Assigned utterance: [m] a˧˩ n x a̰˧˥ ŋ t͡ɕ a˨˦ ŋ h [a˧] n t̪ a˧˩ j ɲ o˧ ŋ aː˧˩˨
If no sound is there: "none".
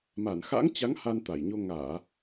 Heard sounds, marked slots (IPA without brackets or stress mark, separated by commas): m, a˧